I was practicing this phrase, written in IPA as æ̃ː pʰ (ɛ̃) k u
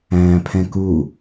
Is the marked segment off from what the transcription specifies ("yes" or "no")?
no